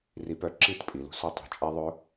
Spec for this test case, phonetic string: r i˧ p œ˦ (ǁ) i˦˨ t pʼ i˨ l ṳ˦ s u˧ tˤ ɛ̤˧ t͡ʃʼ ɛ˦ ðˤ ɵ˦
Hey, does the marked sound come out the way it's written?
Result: yes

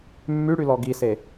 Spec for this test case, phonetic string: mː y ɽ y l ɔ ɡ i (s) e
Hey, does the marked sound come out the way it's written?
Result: yes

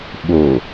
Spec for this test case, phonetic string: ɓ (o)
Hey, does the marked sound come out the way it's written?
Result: yes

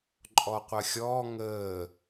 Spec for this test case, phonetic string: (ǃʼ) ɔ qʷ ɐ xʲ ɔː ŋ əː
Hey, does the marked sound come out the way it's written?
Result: yes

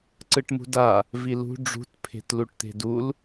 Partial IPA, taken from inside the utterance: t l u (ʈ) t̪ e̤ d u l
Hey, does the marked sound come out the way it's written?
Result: yes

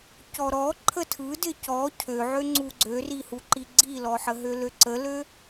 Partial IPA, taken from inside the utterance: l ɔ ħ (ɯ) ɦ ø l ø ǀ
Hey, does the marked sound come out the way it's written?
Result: no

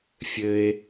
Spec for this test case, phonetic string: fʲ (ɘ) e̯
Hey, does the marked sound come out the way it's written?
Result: yes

